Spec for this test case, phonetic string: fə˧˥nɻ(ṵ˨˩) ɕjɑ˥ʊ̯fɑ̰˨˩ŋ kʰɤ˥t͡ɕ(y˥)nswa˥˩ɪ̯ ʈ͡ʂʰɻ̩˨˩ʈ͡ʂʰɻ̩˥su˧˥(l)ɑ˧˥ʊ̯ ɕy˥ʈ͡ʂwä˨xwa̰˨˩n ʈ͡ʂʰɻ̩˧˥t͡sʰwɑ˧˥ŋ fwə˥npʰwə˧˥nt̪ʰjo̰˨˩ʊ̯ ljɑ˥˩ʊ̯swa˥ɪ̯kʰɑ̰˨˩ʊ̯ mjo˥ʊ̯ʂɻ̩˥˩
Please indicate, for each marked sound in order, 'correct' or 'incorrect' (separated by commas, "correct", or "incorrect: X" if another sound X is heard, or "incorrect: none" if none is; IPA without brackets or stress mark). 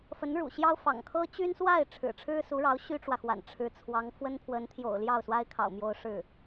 correct, correct, incorrect: ɻ